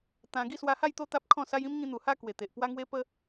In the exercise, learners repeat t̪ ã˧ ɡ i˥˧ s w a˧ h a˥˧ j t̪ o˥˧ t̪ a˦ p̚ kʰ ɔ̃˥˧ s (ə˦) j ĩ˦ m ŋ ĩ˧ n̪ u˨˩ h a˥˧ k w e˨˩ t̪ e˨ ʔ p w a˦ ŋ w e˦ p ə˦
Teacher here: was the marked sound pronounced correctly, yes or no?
no